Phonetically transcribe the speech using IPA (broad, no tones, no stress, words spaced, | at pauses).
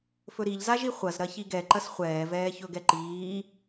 fɵɾiʎzaʒi χʷɐzɾɐ çiɡɛ ǃɐsχʷɛːvɛː çɵɡɛǃiː